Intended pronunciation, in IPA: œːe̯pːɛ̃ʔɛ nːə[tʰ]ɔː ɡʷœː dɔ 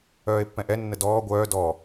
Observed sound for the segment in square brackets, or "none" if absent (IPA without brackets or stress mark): d